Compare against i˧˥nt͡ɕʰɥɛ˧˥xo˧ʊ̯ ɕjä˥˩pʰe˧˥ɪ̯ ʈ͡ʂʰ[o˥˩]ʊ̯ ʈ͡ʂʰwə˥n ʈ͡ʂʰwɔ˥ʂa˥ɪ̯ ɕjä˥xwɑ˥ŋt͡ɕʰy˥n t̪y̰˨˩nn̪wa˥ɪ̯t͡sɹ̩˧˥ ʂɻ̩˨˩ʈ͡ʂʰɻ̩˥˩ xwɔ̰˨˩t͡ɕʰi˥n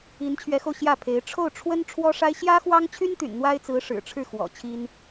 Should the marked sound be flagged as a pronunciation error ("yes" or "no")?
no